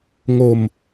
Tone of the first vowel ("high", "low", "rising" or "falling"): low